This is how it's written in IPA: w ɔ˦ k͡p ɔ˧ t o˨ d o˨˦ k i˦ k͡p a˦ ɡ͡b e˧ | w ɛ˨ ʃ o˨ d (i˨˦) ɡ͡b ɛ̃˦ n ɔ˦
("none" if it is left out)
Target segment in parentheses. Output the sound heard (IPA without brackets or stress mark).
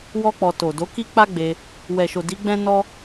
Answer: i˨˦